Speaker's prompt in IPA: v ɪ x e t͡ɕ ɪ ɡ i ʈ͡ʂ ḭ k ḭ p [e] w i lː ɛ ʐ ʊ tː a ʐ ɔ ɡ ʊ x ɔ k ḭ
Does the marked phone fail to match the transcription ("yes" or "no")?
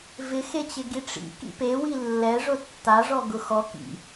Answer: no